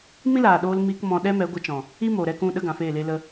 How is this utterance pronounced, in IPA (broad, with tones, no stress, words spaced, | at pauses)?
mĩ˦laː˨ɗoː˧lmiː˧k mɔ̃˧ɗɛ˦mɛ˨˦ ɡʷə˧t͡ʃɔ̃˨ | i˦mo˨ɾɛ˧k ũ˦˨ɗə˧ ɡã˨feː˦˨le˦lə˦